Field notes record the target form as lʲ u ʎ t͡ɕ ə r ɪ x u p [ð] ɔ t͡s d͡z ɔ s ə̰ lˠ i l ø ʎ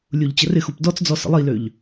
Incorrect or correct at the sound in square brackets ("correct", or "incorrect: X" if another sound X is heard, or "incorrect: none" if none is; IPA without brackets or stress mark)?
incorrect: d